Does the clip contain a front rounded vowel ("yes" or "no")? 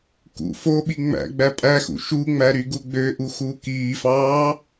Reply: yes